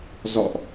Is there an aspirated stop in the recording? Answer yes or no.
no